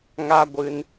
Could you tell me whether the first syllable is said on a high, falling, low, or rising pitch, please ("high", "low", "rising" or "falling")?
high